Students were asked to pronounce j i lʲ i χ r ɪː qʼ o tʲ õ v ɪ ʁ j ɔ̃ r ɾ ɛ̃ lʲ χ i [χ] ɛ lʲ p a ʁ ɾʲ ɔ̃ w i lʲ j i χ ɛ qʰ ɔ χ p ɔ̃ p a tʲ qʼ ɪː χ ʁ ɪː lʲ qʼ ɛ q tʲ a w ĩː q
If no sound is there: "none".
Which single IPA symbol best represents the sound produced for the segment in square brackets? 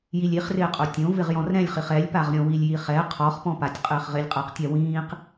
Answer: χ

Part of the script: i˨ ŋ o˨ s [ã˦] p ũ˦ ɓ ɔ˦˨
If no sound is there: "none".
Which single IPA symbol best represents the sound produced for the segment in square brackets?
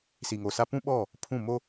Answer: a˦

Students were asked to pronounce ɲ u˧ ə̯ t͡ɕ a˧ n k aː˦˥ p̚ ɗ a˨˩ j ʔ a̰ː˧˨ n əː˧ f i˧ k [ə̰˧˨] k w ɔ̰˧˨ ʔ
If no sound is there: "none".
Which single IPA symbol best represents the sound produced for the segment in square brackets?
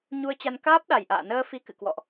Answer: ɨ̰˧˨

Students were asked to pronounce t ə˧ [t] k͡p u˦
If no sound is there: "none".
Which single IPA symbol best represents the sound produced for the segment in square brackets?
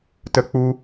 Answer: none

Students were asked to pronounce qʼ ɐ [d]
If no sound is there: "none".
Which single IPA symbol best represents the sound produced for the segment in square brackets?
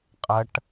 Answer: ʈ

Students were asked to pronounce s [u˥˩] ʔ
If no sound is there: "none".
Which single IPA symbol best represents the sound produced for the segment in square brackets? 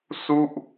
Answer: u˥˩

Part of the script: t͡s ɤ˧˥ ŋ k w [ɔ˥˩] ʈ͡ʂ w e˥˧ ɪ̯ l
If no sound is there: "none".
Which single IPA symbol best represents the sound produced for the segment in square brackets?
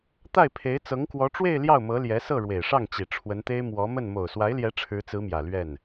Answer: ɔ˧˥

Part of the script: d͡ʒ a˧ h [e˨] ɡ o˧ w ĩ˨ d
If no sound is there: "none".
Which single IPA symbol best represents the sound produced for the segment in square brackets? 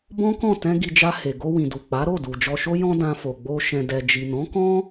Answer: e˨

